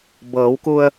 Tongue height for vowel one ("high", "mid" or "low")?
mid